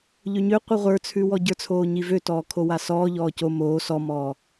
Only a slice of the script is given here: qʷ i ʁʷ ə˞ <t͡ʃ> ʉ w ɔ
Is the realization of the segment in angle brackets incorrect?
yes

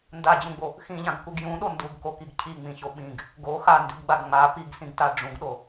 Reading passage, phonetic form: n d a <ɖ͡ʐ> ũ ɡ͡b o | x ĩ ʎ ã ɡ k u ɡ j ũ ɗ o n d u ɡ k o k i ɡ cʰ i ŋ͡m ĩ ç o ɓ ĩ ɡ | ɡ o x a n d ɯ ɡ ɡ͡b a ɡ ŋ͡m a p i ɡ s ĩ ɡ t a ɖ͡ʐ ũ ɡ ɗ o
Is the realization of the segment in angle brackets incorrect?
yes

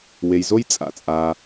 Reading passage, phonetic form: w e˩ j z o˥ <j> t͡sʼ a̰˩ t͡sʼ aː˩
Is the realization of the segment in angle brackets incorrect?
no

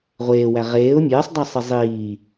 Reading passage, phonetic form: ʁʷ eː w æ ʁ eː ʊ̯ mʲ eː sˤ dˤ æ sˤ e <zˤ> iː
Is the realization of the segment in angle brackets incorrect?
no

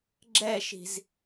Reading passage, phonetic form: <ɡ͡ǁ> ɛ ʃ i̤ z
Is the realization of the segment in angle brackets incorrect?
no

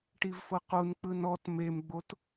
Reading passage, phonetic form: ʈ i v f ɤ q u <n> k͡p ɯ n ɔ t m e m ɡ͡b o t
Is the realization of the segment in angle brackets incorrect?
no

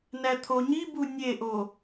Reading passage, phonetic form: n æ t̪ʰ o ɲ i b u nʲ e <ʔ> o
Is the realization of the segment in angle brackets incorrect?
no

